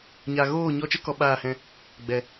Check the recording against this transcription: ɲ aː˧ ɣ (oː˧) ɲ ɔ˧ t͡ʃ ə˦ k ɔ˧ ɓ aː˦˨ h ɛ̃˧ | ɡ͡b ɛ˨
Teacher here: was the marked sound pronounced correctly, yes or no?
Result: no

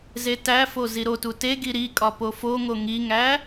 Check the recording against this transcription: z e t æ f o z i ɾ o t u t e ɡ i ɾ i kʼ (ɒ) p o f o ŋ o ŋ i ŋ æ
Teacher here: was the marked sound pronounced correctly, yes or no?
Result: yes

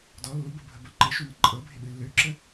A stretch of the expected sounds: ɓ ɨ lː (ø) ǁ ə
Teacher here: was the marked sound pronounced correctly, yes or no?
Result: yes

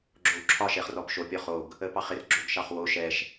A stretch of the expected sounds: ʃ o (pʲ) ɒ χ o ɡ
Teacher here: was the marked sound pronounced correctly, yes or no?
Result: yes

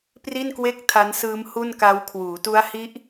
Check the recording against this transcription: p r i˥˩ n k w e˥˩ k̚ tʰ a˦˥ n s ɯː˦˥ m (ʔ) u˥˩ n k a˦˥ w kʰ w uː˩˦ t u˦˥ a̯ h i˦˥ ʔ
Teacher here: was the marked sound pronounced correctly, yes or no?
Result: no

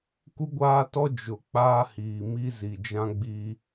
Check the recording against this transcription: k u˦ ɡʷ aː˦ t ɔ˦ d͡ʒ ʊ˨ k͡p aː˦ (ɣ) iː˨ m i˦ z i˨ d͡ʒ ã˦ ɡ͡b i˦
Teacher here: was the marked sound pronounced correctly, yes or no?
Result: no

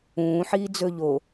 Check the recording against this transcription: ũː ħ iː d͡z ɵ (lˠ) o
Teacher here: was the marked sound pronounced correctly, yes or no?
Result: no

